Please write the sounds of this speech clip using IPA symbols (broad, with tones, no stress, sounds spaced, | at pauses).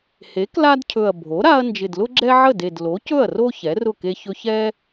h e˩˥ k l a˦ d cʰ ɵ˨˩ ɐ̯ bʱ o˩˥ ɾ a˦ ɐ̯ n d͡ʒ ɪ˨˩ d l ʊ˦ ɡ͡ǁ ɛ˦ ʕ ə˥˩ d e˨˩ d l o˩˥ c ɵ˥˩ ɐ̯ r o˦ ç ɛ˩˥ r ʊ˥˩ k e˦ ç ɵ˦ ç ɛ˦